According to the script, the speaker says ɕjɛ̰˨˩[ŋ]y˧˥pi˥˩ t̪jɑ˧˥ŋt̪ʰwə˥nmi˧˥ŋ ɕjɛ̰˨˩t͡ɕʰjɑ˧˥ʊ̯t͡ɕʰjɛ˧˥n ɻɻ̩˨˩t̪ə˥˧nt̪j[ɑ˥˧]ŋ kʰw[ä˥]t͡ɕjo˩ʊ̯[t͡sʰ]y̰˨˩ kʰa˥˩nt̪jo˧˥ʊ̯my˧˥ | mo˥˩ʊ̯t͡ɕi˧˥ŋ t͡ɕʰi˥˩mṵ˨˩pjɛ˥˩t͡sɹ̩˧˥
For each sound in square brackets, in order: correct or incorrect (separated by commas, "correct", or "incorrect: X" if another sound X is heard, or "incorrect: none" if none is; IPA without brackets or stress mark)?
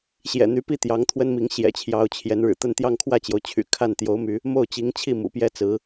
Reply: incorrect: n̪, correct, incorrect: ä˥˩, incorrect: t͡ɕʰ